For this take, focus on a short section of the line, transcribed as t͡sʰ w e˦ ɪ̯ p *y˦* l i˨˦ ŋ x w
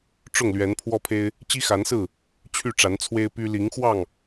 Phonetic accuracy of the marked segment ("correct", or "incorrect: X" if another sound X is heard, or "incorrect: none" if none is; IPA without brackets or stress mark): correct